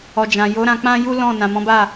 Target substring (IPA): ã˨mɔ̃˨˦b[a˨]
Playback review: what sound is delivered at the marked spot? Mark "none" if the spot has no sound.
a˦˨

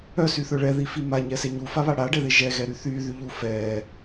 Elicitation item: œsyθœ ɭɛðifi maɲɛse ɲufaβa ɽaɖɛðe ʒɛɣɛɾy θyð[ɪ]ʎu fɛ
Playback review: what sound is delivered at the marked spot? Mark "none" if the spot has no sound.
y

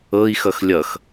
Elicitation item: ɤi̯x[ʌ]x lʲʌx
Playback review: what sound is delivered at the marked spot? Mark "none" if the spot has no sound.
ʌ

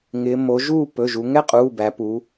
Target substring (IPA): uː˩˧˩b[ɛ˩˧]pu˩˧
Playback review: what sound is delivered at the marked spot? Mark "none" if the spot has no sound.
æ˩˧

